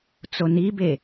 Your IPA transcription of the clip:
t͡sonibe

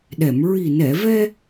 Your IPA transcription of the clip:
ɗɛ˨˩˨mɹi˨˩ nɛ˨˩˨vɛ˧

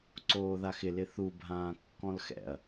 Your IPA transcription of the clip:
ǀoːðaxɪ lɪθu bʱãːkːɔ̃lxɛ̰ɐ̯

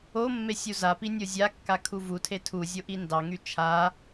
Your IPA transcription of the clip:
o mːesʲuzapi nʲozʲakːa kʰuvutʰe tʰu zʲoʔindɑŋy t͡ʃʰa

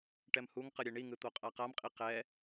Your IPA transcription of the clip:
ʈɛmhuŋqʌ ɾʲeɳiŋɯ t̪oqʼaqamqʼi qɛ

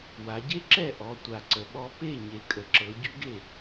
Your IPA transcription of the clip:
wa˨˦ɟe˥ǁɛ˥˨ ʔɔ˨˦ tʷa˨˩ǀə˨˦ɓɔ˥ pe˥˨ ɲe˨˩kʼə˨˩ǁɤ˨˦ ɟʉ˥ɡe˥˨

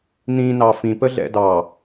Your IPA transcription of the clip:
nĩ nɑfĩ pəɮɛ̰dɑ

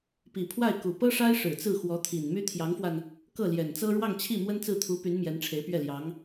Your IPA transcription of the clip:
pi˨˩pʰwa˥˩ɪ̯ku˨˩ pɤ˥ʂa˥ɪ̯ ʂɻ̩˨˩t͡sɹ̩˥˩xwɔ˧˥t̪ʰi˨˩n my˥t̪ʰjɑ˧˥ŋfwa˧n | kɤ˥˩ljɛ˨˩nt͡sɤ˥ ɻwɑ˥˧ŋt͡ɕʰi˥˩ mwə˥nt͡sɹ̩˥˩t̪ʰu˧˥py˧˥n mjɛ˧˥nʈ͡ʂʰe˧˥ɪ̯pɥɛ˥˩ljɑ˧˥ŋ

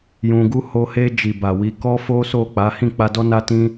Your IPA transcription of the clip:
jũ˧ɡu˦ ho˧he˧d͡ʒi˨ ba˨wi˨˦ kɔ˦fo˦so˦˨ k͡pa˨˦hĩ˦˨ k͡pa˧dɔ˦na˦ tĩ˦

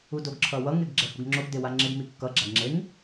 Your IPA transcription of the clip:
udoɡǁʰʌwʌŋ eɡɡ͡ǁɛhuɡŋ͡ǁoɡ dewaŋ͡ǁeɡ mikːʌ ɡ͡ǁaɡŋ͡ǁeŋ

